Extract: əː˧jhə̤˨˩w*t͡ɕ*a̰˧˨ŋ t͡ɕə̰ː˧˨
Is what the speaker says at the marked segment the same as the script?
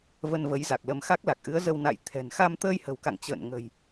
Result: no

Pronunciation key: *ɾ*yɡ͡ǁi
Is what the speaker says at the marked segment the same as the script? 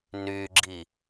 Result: no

